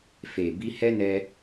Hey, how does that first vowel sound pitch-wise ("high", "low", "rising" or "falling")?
low